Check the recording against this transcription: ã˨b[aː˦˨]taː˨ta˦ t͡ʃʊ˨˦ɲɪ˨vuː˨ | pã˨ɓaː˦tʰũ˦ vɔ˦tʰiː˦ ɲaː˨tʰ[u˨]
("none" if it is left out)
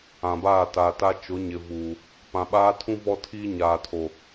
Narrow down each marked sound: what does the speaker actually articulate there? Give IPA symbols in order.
aː˦˨, o˨

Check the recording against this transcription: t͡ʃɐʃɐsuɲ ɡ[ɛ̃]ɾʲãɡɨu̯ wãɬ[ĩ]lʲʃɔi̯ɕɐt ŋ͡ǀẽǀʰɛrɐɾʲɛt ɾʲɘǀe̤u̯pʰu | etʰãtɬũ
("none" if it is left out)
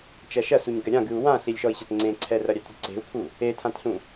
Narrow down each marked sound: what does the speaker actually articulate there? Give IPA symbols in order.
ɛ, i

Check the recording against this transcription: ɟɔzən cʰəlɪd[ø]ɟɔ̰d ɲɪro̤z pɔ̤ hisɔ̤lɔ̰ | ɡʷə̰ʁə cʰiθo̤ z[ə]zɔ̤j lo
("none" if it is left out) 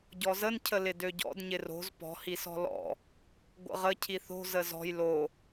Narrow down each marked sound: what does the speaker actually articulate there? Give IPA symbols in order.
ø, ə

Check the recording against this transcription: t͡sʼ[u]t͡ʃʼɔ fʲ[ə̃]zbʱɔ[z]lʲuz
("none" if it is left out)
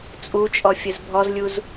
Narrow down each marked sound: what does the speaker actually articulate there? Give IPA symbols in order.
u, ə, z

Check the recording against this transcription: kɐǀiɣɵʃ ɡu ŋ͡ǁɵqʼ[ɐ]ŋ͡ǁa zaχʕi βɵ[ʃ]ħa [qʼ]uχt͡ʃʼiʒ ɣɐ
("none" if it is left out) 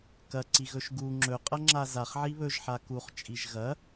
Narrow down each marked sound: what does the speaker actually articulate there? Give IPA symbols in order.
ɐ, ʒ, k

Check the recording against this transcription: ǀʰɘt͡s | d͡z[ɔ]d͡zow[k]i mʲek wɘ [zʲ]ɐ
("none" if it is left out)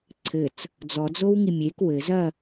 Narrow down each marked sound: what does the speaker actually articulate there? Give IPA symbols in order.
ɔ, ŋ, z

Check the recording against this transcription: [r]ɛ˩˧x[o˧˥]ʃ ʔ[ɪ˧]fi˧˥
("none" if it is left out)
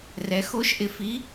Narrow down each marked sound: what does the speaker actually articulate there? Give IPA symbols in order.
r, o˧˥, ɪ˧

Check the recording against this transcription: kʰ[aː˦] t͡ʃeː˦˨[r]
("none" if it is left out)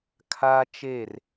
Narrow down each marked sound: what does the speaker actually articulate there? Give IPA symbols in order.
aː˦, r

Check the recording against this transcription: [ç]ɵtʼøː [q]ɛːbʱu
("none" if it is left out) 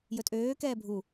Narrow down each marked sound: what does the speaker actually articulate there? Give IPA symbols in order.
j, k

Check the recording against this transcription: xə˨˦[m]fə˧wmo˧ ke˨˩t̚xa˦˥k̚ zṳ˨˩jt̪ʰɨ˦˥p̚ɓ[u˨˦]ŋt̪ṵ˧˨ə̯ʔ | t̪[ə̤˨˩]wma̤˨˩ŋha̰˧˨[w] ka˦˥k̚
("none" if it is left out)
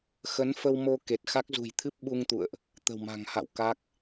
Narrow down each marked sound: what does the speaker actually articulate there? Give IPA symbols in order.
n, u˧, ə̤˨˩, w

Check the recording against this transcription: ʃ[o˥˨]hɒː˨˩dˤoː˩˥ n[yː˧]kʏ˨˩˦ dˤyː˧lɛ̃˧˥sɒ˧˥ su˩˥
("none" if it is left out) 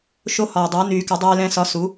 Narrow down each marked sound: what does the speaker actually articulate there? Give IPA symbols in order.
o˧˥, yː˨˩˦

